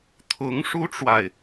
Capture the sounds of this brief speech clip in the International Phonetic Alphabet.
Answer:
t̪ʰ ʊ˧˥ ŋ ʂ u˥ ʈ͡ʂ w a˨ ɪ̯

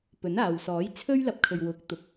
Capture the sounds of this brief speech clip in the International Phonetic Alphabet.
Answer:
p ɵ˨˥ n aː˨ w s ɔː˨˥ j t͡sʰ ɵ˥ ɥ l ɐ˧ p̚ kʰ ɵ˨ ɥ w ʊ˨˥ k̚ t̪ ʊ˨˥ k̚

